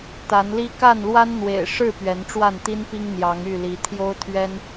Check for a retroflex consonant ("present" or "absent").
present